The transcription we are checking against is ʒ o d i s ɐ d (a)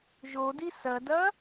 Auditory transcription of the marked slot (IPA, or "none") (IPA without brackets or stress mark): ɐ